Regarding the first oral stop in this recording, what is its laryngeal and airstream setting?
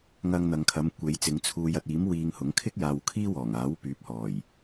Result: aspirated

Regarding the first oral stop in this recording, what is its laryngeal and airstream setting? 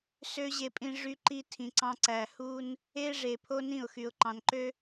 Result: ejective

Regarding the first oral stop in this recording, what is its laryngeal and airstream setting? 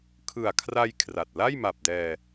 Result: aspirated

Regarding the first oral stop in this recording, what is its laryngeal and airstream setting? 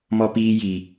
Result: plain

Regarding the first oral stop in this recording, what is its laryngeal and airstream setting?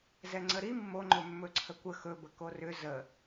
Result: click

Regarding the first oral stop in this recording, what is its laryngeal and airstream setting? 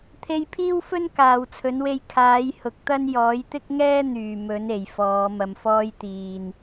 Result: aspirated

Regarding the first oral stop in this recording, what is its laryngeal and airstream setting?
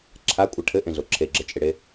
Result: click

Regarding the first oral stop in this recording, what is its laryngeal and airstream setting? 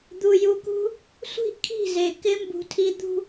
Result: plain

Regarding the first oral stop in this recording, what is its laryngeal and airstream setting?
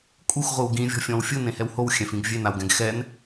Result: ejective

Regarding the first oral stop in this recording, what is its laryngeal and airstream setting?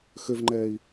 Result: click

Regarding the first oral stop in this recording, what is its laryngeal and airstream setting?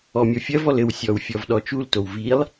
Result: implosive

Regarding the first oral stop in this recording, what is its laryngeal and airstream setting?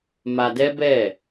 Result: plain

